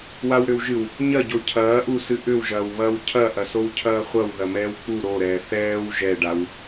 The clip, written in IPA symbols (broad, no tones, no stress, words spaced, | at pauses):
wawɾʏwʒɨw | ɲɐɟo cʰɐːʔusɨ ʔʏwʒɐːwβɐːw cʰɐʔɐ sowcʰɐːχʷɐw ðɐmɛːwk͡pu ɾoɾɛː θɛːw ʒɛɖaw